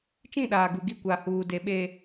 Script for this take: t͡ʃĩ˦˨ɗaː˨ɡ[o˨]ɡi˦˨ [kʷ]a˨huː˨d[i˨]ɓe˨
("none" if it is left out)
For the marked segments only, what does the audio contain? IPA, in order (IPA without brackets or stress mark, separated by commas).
u˨, kʷ, e˨